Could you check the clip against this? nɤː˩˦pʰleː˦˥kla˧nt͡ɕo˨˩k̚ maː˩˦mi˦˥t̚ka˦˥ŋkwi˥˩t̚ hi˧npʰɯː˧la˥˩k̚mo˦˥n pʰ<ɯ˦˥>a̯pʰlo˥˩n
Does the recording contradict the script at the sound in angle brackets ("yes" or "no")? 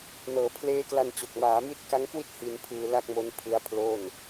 no